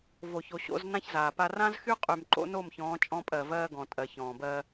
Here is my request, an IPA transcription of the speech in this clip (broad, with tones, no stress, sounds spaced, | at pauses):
v o˨ ç o˨ ɕ o̰˨˦ z n ã˦ ç z aː˨ p a˦ r ã˦ z x y˦ qʼ y˨ m ǃ o̰˦ n o˦˨ m ç ɔ̃ː˨˦ t͡ʃʼ ɔ̃˦ pʼ ɜ˨ v ɜː˦ ɡ ɔ̃˨ tʼ ɜ˨ ç ɔ̃ː˨ b ɜ˦